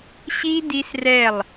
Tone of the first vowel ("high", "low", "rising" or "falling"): high